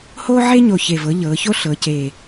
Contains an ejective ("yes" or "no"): no